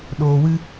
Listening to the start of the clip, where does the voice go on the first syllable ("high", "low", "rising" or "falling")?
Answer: low